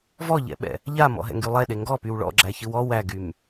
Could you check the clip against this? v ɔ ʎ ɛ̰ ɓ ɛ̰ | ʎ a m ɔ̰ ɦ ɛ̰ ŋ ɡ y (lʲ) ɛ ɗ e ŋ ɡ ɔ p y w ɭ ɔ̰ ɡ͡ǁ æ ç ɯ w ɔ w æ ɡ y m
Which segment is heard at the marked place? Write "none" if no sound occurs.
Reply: lˠ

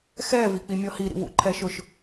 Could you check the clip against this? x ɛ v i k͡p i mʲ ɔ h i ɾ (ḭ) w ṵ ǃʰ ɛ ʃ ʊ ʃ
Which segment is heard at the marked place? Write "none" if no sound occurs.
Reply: ḭ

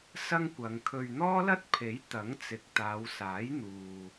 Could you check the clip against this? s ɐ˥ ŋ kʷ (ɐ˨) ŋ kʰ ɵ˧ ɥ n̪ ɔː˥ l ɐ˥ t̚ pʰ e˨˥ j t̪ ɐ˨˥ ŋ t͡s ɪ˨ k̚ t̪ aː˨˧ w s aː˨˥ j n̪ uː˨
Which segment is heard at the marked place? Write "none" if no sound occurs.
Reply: ɐ˨˧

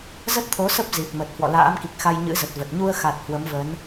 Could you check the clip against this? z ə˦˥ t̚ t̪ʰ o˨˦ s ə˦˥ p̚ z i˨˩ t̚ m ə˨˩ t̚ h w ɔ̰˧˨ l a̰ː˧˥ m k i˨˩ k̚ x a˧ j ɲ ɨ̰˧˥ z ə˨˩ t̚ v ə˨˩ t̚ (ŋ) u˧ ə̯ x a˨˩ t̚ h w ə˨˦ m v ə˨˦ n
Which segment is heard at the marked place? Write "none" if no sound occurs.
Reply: ɲ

